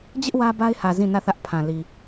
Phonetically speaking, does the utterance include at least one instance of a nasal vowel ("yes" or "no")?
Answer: yes